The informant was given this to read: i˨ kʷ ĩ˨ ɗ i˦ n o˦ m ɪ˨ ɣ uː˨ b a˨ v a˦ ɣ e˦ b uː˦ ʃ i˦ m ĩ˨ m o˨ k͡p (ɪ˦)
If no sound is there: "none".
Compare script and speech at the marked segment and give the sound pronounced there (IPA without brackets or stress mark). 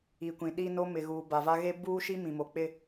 ɪ˦